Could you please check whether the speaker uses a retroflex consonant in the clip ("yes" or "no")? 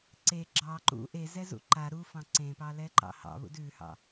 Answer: no